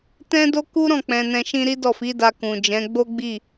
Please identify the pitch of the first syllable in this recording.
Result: high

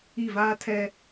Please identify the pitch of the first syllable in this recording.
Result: falling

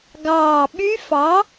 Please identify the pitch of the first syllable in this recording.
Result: low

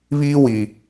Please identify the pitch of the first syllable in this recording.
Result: high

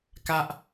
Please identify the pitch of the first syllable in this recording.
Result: high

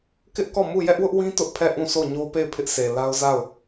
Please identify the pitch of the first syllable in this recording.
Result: high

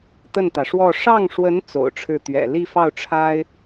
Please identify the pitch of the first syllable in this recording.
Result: falling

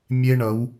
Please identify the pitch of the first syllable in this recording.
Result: high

